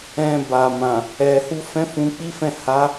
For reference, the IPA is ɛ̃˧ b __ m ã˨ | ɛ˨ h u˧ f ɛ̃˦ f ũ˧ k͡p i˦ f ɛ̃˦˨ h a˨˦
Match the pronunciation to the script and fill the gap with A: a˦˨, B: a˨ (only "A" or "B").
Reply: B